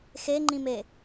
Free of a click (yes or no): no